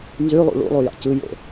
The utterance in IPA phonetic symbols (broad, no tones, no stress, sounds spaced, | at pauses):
n z y lˠ ṵ ɭ ṵ lˠ u j ɑ̰ c ɯ j o̰